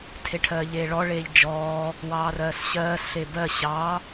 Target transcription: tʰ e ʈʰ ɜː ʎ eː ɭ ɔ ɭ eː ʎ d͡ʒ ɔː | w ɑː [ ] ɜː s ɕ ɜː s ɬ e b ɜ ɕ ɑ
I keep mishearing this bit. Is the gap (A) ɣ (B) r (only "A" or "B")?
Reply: B